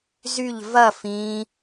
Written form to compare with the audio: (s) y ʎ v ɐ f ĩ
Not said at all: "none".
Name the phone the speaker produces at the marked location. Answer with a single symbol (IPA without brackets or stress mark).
z